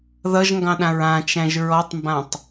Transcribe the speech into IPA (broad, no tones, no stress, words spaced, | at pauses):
ðʌʒŋɡɑ̃ɗãɹ ãt͡ʃæ̃ʒ ɹɔtˤmbãtˤ